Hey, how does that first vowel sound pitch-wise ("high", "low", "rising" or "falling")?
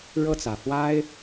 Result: falling